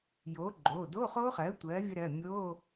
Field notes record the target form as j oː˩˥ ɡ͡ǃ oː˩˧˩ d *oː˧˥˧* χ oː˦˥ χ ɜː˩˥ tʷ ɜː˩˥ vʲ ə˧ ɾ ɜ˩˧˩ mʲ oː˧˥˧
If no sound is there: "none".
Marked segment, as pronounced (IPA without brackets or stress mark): oː˧˥˧